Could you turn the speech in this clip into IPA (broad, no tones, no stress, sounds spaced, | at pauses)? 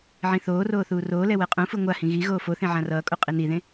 ʕ ĩ θ oː r oː θ uː r oː l ɛ w ɛ qʼ ũ f ɯ ŋʷ a h ĩ ɣ i ɣ oː f o θ ẽ ʕ ã r ʌː kʼ o qʼ i n i ð ẽ